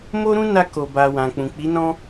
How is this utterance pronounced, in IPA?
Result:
mo˦ ɾũ˦na˧ ko˨ba˨wã˨k͡pũ˨ k͡pi˨˦nɔ̃˦

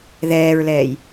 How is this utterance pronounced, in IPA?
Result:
ðɛːɹlɛːj

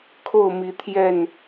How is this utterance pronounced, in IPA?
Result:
kʰo˥˨ʊ̯mi˨˦t̪ʰjɛ˥˨n

